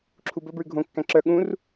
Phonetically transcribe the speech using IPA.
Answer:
ǁʰubɵbɹʉ ɡʱõkːæ̃ ǁœ ɠũr

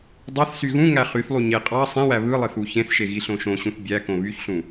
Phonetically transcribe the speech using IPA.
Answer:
dˤɑθ syɣũŋæ χyθlˠu ɲe qʼɑ sˤẽwæ βɯlˠeθ uçẽθʃe ɣiɬõʃõɕũθ bʲækõ βyçɬũ

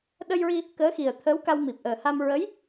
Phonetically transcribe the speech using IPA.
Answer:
ɗə˧jɹi˧ | kəː˧˥xi˨˩ə̯ t̪ʰəː˧˥wka˧wmi˨˩p̚ ʔəː˨˩ha˧m ɹə˧˥j

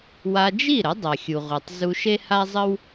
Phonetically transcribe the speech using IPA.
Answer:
wa˧d͡ʒi˥˩ɾə˩˥ dˤa˩xʲu˩ʁʷe˩tˤ zu˧ʃe˥ha˥zˤə˥w

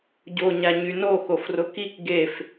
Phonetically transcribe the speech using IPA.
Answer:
ɟo ɲaɲyno xofrʊkik ɡef

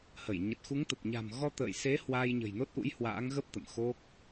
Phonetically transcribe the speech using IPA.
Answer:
hə˧˩j ɲə˨˩t̚xu˨˦ŋt̪ə˨˩p̚ɲa̤˨˩m ɣɔ˧t̪ə̰ː˧˨jse˨˦ hwaː˧jɲə̤˨˩jno˦˥t̚ʔṵ˧˥j hwa̰ː˧˥ŋɣə˦˥p̚ t̪ə̰˧˨mxo˦˥k̚

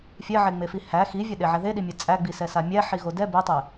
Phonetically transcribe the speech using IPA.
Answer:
fʲɛʕeŋ͡mefi hæ xivʲɛɗeʕæ ðeɗimʲɛ t͡sʼæɡ͡bisɛsa mʲæħiɣo dɛ betˤe

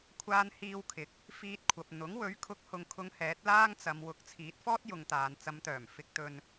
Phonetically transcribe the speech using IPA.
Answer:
kʷʰaː˧nhiː˧wkʰɪ˨˥k̚ | fiː˧t̚kʷʰɐ˨p̚ n̪ʊ˨˥ŋwɵ˨˥ɥ kʰʊ˨˥k̚hʊ˨ŋkʰʊ˨˧ŋ hɛː˨˥t̚laː˥ŋt͡sɐ˨˧m wʊ˨˥k̚t͡sʰiː˨˥t̚fɔː˥t̚jʊ˨ŋ t̪aː˨nt͡sɐ˨˧mt̪œː˨˩m fɪ˧k̚t̪ɵ˧n

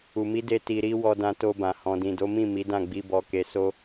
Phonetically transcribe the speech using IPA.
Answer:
u˨mi˨˦de˧ ti˨ɾi˧ wɔ˧dã˧to˧bã˨ hɔ̃˨dĩ˨do˨˦mĩ˦˨ mi˨˦dã˦˨ɡ͡bi˧bɔ˧ ke˧so˦

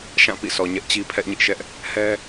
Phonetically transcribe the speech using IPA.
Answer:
ʃã˦˨pḭ˦˨sɔ˨ ɲɛ˦ʔt͡ɕi˦ pʰɛ˦ʔɲɪ˦ʔʃɛ˦ʔ | hɛ˦

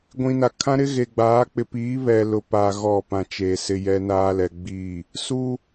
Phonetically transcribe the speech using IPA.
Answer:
ɡʷĩ˨na˨kʰã˦ ɾɪ˦ɣe˨ɡ͡baː˨˦ k͡pɪ˨piː˨˦ βɛ˨lʊ˨paː˨ ɣɔ˦˨pã˨t͡ʃe˨ sɪ˦jɛ˦naː˦lɛ˨ ɡ͡biː˦˨ | su˦

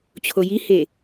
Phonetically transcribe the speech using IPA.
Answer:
t͡ɕʰojihe

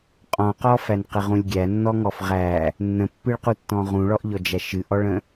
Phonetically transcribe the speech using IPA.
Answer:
qʼɔ̃qɔfæn qəʁũlʲɡʲænːɔ ŋɔfʁæ | nːə̃pːɨɭqutːɔ̃ ʁũɭɔʔʎɔd͡ʒæ ʃɨʔɔɭə̃

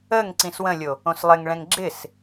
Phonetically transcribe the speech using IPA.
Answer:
əŋ ǀĩswə̃lʲo | õslˠɪŋɭɛ̃ŋ ɡ͡ǁɪs

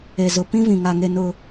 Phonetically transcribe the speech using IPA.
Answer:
e˨zʊ˨ pĩ˦vĩ˨ŋa˨ŋe˨ nʊ˨

